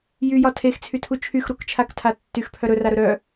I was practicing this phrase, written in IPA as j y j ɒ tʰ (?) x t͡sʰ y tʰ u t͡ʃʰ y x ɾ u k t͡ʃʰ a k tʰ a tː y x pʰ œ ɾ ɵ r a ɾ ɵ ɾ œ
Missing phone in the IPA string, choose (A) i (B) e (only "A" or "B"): B